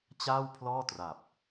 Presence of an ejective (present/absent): absent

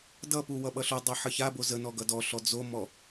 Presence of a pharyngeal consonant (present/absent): present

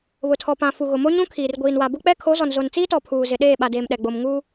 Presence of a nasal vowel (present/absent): present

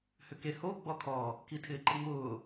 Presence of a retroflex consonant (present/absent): absent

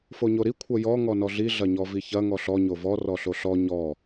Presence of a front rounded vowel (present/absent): absent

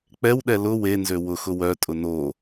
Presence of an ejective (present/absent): present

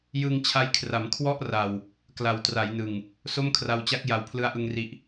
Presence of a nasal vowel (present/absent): absent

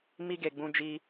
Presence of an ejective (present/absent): absent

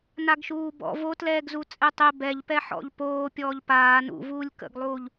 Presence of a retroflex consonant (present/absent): absent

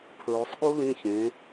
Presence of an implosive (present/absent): present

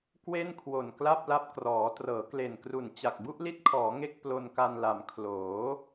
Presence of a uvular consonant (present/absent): absent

